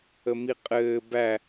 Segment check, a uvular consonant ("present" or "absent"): present